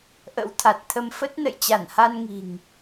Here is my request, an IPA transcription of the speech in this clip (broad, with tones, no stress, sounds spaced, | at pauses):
ʔ ə̰˧˥ w t̪ʰ a˨˩ t̚ t̪ʰ ə˧ m f ə˦˥ t̚ n ə̰˧˨ j t͡ɕ a˧˩ n h a˧ n ŋ i̤˨˩ ŋ